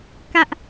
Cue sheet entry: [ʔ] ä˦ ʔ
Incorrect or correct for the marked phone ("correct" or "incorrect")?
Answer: incorrect